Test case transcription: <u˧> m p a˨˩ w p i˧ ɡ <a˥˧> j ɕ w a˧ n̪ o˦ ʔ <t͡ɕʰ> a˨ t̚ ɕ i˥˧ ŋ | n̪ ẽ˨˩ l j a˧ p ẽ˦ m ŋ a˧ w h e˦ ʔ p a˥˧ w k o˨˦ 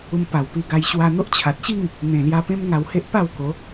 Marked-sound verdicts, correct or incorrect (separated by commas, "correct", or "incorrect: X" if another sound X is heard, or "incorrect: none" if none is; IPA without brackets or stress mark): correct, incorrect: a˧, correct